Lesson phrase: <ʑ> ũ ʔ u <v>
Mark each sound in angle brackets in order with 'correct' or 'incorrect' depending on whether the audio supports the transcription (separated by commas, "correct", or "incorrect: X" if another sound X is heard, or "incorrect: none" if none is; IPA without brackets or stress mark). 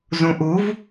incorrect: z, correct